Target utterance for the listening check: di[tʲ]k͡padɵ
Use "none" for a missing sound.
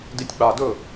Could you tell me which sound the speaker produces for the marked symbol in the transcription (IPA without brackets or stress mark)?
tʲ